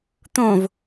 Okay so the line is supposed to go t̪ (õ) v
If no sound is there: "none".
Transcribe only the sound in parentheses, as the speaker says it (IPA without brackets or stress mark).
õ